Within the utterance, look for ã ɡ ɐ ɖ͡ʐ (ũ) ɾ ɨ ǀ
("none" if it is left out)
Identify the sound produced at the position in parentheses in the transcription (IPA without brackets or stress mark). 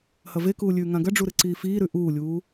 u